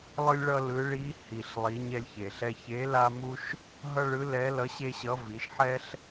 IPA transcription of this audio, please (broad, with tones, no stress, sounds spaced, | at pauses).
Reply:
lˠ ɯ˥ lʲ ɭ ʌ˥ l ɯ˧˥ ɭ i˧˥ h i˩ ɬ lˠ i˩˧ ɲ ɛ˧ lʲ ç e˩ ɬ ɛ˧ ç e˧˥ l a˥ m u˥ ʃ | ɦ ʌ˥ ɭ ɯ˧˥ l ɛ˧˥ l ʌ˧˥ ɕ e˥ ɕ ʌ˧˥ v i˩˧ ʃ ħ ɛ˥ ɬ